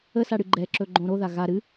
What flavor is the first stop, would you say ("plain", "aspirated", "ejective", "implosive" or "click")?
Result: click